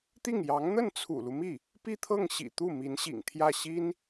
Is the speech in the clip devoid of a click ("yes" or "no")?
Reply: yes